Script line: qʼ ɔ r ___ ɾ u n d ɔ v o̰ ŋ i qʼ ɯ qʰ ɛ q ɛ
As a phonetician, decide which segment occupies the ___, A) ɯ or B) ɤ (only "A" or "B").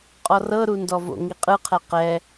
B